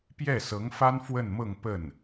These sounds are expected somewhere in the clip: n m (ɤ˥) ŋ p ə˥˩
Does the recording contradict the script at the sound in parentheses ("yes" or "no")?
yes